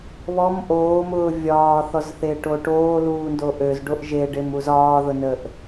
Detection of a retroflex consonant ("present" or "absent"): present